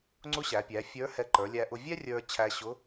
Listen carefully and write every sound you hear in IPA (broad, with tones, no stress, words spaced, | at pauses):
ŋ͡ǀʊ˧˥ɕæ˩˧pʲæ˩˧ fʲə˞˧˥hɛ˧ ǃə˞˩˧lʲæ˧ʔʊ˧ vʲɛ˥rʲə˞˧t͡ɕʰæ˧ ɕʊ˧˥